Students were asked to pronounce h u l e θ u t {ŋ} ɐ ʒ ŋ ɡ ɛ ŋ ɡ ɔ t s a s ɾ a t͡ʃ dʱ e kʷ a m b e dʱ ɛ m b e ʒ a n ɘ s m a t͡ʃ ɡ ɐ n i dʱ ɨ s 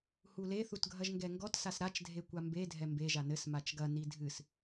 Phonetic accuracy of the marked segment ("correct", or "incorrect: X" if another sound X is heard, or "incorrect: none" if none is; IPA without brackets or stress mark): incorrect: ɡʱ